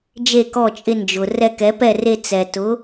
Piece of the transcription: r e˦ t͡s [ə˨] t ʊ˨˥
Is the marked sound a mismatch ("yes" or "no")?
yes